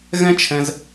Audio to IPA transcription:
ɣ ɛ̃˦ t͡ʃʰ ɛ̃˧ z

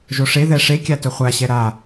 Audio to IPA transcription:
ʒ o ʂ e ð ɛ ʂ e kʲ a t ɵ χʷ a ɕ ɛ ɾ a

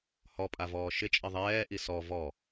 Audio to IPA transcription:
h ɔ pʼ a v ɔː ʃ ɪ t͡ʃʼ ɪ ðˤ ɛː ʔ i s ɔ v ɔ

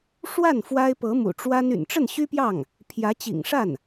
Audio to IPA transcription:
ʂ w a˥˩ n f w a˥ ɪ̯ p ɤ˧˥ m ṵ˨˩ ʈ͡ʂ w a˥ n y̰˨˩ n ʈ͡ʂ ə˥˩ n ɕ y˥ p j ɑ˥˩ ŋ | pʰ j ä˧˥ t͡ɕ ḭ˨˩ ŋ ʂ a˥˩ n

